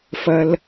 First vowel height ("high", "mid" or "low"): low